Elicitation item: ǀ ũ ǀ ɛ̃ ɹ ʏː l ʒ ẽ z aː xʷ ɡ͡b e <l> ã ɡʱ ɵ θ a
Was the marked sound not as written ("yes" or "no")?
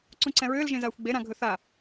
yes